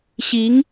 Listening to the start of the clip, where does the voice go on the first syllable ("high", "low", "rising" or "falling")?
rising